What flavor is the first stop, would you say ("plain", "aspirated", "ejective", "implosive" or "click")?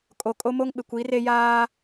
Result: ejective